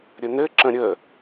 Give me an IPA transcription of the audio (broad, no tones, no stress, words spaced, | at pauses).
ɾʲənɘǁə̃ ɾʲə